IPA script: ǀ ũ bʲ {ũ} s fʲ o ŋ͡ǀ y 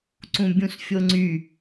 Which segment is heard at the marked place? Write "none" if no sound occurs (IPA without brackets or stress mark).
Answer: ũ